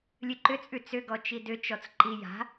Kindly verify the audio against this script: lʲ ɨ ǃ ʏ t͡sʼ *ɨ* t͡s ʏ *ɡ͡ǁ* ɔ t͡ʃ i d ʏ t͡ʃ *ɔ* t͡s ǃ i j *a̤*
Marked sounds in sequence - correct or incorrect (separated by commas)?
incorrect, incorrect, correct, correct